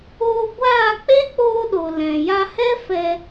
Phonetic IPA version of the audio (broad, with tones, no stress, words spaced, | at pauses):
oː˧ɡʷaː˦˨ k͡pe˦k͡poː˧ɗo˨ lɛ̃˨ja˧hɛ˦ fɛ˧